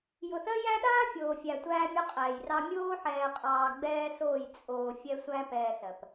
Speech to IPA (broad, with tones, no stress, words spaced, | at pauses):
jʊ˨θɜ˦jæ˦ ɗaː˦ fʲoː˨fʲæ˨ tʷæː˦ mʲʊ˦qʼɛː˨jrɑ˦ mʲoː˦ħɛː˨qʼɑː˨ ɡ͡bɛː˦soː˦˨j t͡sʼoː˨ fʲɛ˦sʷæ˦ pɛː˨s ɜ˨p